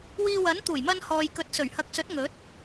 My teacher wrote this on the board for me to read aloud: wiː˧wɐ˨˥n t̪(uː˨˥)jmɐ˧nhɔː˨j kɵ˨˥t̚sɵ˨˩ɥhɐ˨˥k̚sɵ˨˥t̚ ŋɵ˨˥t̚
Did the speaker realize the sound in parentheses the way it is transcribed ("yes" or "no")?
no